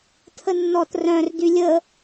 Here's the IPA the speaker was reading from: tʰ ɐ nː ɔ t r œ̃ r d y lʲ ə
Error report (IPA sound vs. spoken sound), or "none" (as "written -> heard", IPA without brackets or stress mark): ɐ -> ə